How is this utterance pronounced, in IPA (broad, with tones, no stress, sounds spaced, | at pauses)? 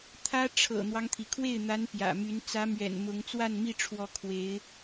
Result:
t̪ʰ ä˥ ʈ͡ʂʰ ɤ̰˨˩ n̪ w ɑ˦ ŋ t̪ʰ i˩ kʰ w e˥˩ ɪ̯ n̪ a˧˥ n p j ä̰˨˩ m y˧˥ n t͡s ä˧˥ m ɥ ɛ̰˨˩ n m ʊ˧˥ ŋ t͡s w a˥˧ n m i˥˩ ʈ͡ʂʰ w ɔ˧˥ kʰ w e˧˥ ɪ̯